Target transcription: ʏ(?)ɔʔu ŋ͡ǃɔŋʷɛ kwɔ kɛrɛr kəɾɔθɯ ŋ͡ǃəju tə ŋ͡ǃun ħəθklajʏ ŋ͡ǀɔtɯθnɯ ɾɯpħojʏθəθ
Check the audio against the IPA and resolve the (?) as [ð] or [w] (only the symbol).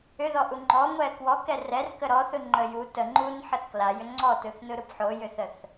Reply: ð